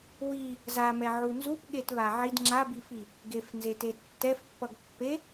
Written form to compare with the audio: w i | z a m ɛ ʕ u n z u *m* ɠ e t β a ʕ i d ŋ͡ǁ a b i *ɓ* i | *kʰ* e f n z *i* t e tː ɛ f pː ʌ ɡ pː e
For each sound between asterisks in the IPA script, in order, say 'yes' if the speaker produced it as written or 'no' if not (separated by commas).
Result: no, no, no, no